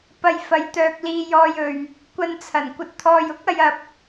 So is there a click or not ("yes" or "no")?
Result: no